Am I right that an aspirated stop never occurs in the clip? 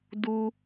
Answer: yes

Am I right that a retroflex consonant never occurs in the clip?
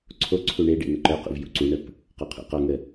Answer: no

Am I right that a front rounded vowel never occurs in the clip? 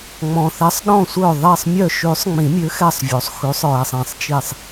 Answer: no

